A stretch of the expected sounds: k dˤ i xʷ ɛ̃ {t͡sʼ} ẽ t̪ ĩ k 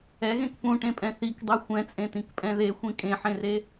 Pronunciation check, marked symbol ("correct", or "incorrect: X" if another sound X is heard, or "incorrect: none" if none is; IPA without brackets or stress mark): correct